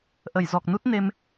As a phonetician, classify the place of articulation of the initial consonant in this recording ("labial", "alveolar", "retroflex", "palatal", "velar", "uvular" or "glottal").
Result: glottal